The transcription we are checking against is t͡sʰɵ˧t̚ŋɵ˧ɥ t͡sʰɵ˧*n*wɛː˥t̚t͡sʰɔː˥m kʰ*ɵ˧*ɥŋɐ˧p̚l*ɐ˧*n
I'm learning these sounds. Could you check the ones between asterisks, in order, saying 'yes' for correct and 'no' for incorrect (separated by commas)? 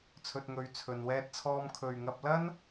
yes, no, no